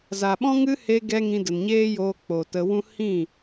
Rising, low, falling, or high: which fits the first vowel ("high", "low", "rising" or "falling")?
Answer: low